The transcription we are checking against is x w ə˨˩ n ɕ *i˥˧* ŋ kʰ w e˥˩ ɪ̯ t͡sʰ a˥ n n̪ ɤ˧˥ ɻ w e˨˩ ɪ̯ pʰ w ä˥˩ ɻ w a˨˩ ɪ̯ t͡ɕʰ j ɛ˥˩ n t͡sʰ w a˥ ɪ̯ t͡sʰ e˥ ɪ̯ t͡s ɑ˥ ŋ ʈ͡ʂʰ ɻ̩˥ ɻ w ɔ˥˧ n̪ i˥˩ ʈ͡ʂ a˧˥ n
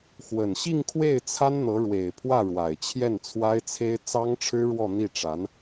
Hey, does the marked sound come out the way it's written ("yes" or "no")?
yes